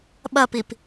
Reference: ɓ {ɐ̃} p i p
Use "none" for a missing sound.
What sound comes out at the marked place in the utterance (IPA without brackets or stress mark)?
ɐ